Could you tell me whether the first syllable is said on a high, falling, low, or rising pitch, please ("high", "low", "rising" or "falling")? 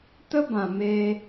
high